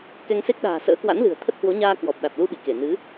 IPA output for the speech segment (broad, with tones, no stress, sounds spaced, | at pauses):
k ɛ˧ ŋ s e˦˥ k̚ ɗ a̤ː˨˩ s ə̰ː˧˥ k w a̰˧˥ n l ɨ̤˨˩ ə̯ t̪ʰ ə˦˥ t̚ h w o˨˦ ɲ aː˧ k w ɔ˨˩ p̚ ɗ a˨˩ t̚ l u˧ ɓ ḭ˧˨ k e˧˩ n ɨ˨˦